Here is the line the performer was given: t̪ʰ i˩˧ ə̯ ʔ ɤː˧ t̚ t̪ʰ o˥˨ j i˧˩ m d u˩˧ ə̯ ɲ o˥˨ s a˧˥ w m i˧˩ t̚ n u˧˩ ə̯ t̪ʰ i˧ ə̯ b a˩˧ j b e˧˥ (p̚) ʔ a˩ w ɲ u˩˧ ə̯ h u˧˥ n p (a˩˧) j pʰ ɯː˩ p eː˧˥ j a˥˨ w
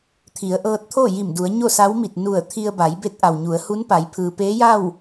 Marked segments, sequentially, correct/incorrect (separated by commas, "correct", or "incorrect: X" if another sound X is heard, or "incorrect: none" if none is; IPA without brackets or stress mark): incorrect: t̚, correct